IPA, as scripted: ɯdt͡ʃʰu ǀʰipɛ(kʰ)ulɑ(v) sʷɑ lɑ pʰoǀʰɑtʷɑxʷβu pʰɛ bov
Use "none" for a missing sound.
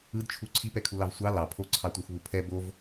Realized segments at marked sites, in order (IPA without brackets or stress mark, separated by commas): kʰ, v